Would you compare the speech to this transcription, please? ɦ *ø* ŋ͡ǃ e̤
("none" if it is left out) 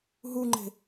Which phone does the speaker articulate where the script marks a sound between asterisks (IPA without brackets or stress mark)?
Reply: u